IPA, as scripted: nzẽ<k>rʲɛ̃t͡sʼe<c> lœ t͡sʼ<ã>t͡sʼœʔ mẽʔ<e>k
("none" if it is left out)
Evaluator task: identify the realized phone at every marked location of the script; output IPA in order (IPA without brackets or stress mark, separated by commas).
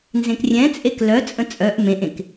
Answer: k, k, ə̃, ẽ